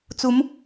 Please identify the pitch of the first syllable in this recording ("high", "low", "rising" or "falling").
rising